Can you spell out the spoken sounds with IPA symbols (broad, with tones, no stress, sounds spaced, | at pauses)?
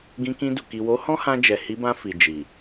ɡ ĩ˧ k ĩ˧ d u˨ k i˨ w o˨˦ h ɔ̃˦ h ã˧ d͡ʒ ɛ˨ h i˨˦ b ã˧ f i˨ d͡ʒ i˨